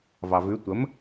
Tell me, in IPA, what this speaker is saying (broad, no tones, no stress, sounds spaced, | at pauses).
v ɑ v ʉ tʷ ə m